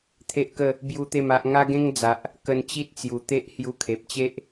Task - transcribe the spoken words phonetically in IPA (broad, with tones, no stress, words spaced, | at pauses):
t̪ʰe˦ʔkə˥˧ | bju˦t̪e˥˧ma˦ʔ ŋa˦ɡẽ˦ŋd͡za˨ʔ | kə˧nt͡ɕi˦t̚t͡sju˨˩t̪e˦ʔ hju˧kʰe˨p̚t͡ɕe˦ʔ